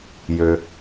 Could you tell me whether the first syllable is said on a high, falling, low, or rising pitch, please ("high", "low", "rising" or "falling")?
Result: low